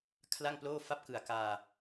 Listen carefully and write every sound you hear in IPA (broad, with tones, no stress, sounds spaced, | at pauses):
kʰ l a˥˩ ŋ p l oː˥˩ f a˦˥ p̚ k ɯ˨˩ a̯ k aː˧